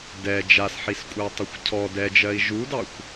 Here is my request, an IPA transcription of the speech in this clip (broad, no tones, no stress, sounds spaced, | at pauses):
d ɛ d͡ʒ a s ħ i s kʷʼ ɜ tˤ ɐ xʷ cʰ ɔ d ɛ d͡ʒ ɜ i̯ ʒ u d ɑ xʷ